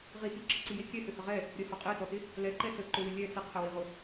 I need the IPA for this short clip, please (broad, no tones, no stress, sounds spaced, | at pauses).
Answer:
ʁ i t i ǁ ə ǀ i j e kʲ ɛ h ø h ə ʁ ɛ | ɾʲ ə h ɔ qʼ e s ɔ t ɪ | l ɛ ǃ ɛ s ə ǃ ʊ w ɪ lʲ ɛ s ɪ qʰ ə w i ʁ ʊ